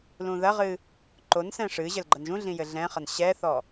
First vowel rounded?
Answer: yes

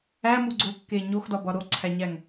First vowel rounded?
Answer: no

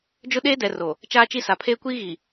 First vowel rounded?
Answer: yes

